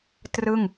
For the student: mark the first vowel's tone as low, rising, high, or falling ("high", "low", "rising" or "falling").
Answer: falling